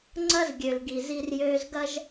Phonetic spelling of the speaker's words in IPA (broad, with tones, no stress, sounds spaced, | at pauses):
ŋ͡ǀ ɐ˦ z ɡʲ ø˨ l ɡ i˨ z i˦ r j øː˦ z ɡ ɐ˦ ʒ